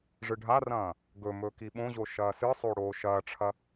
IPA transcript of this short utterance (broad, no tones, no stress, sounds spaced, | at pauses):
ʐ ɨ ɖʱ a r ɐ̃ː | ɡ ɵ m ɵ k i ɓ õ ʑ o ʃ ɐː s ɨ sˤ o ɽ oː ʃ ɐː ʈ͡ʂʰ ɐ